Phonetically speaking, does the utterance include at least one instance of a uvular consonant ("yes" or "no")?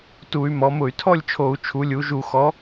no